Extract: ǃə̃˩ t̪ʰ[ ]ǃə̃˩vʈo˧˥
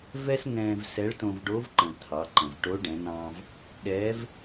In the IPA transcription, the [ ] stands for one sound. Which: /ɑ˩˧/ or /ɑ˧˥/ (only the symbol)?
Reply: ɑ˩˧